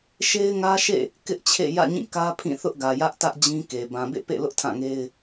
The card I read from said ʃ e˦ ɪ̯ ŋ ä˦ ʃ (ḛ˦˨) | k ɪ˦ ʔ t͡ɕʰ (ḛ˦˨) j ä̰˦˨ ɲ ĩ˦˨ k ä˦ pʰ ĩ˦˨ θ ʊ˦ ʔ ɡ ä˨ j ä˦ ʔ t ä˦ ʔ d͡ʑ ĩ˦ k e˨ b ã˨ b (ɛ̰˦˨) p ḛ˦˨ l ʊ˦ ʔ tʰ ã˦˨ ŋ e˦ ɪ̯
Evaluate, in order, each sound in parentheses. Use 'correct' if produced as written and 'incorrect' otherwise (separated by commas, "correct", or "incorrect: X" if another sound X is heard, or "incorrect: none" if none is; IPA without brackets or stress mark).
correct, correct, incorrect: ḛ˦˨